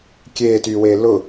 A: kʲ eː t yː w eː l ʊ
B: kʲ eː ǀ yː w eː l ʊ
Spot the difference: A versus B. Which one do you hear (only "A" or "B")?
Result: A